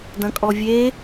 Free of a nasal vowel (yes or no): no